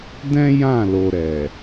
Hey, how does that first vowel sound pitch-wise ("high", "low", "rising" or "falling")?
high